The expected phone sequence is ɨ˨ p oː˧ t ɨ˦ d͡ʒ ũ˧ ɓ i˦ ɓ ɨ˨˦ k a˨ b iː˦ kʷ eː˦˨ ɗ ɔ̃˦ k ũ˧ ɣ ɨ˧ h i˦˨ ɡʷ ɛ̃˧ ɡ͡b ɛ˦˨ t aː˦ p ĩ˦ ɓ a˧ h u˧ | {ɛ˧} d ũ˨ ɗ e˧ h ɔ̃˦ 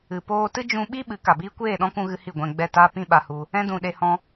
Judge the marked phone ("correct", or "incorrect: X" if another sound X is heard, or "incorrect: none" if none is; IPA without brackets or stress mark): incorrect: ɛ̃˧